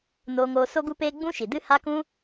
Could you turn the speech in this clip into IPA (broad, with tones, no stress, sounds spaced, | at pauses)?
n oː˧ ŋ oː˧ s o˦ ɡ u˦ p eː˦ ɡ͡b ũ˦ ʃ i˨ d ɨ˦ h a˦ k ũ˦